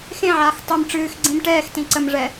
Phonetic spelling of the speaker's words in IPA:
x ẽ ʕ aː x tˤ ɨ m ʈ͡ʂ ɨː x ɡ͡ǀ ĩ m ʈ ɛː x t ĩ ǀ ə m ʐ ɛ

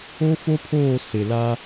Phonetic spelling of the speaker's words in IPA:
o˦ f o˦ pʰ oː˦˨ s ɪ˨ l a˦

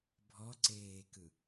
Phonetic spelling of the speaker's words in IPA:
bʱ ɔ ǀ eː k ɯ

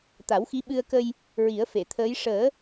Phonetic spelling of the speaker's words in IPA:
t̪ a˨˩˦ w x i˧˥ ɓ ɨ˧ ə̯ k ə˧ j | ɹ i˨˩˦ ə̯ f e˨˩˨ t̪ʰ əː˧˥ j ʂ əː˨˩˦

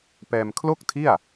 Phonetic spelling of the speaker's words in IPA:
p ɛː˧ m kʰ l o˥˩ k̚ tʰ i˥˩ a̯

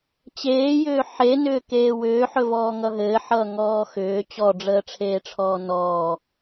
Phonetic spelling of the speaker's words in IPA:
t͡ɕ eː j ʏː ħ e n ʏː k eː w ʏː ħ ɵ v ɔː ŋ ʌ ɦ ɘː ħ ʌː ŋ ɔː x ʏː t͡ɕ ɔ ɖ͡ʐ əː ʈ͡ʂʰ eː ʈ͡ʂʰ ɔː n ɔː

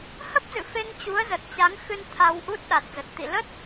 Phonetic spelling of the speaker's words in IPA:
h ə˦˥ p̚ z ɨ̰˧˨ f e˧ ŋ t͡ɕ u˨˦ ə̯ z ə˨˩ t̚ t͡ɕ a˨˦ ŋ x ɨ˧ n t̪ʰ a˧ w ʔ u˦˥ t̚ ɗ a˨˩ t̚ z ə˨˩ t̚ t̪ ḭ˧˨ l ə˦˥ t̚

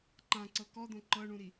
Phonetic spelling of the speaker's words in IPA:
ǃ ã ǀ ɤ k ɔ d̪ õ ǃ ɤ ɳ ũ ɾ i

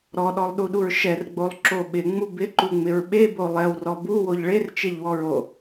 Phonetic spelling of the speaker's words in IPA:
ɾ ɔ ɗ ɔ lˠ ɗ u ɗ u ɹ ʃ ɛ r ɡ͡b o lˠ ǁ o ɓ ɪ ŋ͡m u b ɪ ǃ u ŋ͡m ɪ ɹ ɓ e b o lˠ ɛ w r ɔ b u w o ʎ ɭ e r t͡ʃ e ʎ w ɔ ɹ o

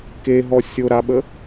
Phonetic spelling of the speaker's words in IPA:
k e ɦ ɔ sʲ o ɾ a ɓ ə

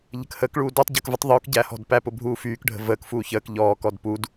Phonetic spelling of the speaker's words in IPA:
ʎ ə̤ k h əː k ɭ uː d ɔ tˤ ɟ əː k v ə tˤ ðˤ uː k ɟ æ h ɔ̤ d p æ p ʊ bʱ uː f yː k ɖʱ ə̤ v əː k f uː ç əː k ʎ ɔː k ɔ d p u d

